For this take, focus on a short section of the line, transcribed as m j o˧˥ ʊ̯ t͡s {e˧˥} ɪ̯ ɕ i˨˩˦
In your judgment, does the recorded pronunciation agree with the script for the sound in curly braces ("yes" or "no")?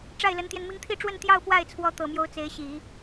yes